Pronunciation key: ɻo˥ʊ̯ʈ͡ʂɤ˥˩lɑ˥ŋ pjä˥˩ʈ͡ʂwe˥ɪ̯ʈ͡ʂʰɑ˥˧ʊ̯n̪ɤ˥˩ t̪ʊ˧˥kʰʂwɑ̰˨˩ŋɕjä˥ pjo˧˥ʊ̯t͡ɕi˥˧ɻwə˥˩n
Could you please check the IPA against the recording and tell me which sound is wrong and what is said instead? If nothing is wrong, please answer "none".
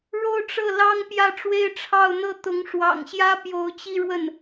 kʰ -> ŋ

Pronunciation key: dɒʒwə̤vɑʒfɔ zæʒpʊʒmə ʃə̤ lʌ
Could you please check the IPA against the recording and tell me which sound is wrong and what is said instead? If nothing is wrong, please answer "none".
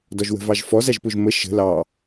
ʌ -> ɑ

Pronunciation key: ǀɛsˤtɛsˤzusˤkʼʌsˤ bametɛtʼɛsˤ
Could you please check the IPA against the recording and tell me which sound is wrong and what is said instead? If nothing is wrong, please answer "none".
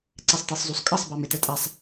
none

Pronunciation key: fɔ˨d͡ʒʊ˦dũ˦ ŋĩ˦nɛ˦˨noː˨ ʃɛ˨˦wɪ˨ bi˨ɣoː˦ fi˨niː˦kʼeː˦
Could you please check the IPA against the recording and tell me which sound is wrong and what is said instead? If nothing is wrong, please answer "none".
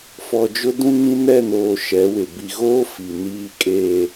none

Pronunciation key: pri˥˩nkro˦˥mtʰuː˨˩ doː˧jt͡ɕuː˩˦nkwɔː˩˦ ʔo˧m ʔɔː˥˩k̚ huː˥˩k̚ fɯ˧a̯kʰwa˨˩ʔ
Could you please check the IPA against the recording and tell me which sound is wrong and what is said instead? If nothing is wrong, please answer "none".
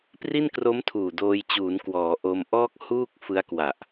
kʰ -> k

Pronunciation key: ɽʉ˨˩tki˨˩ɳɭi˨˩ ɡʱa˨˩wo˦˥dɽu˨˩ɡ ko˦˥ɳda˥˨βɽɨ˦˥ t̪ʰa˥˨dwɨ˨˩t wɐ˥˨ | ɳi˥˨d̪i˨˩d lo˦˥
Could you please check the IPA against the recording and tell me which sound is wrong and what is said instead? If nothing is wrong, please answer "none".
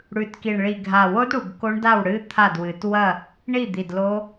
β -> w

